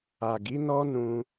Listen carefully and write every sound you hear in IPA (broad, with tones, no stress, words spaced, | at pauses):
a˨ɡi˨˦ nɔ˦nũ˧